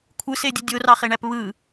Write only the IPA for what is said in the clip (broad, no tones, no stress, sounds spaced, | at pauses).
kʷʰ ɯ s e dʲ ɯ dʲ o r ɑ χ e ɳ æ p β ɯ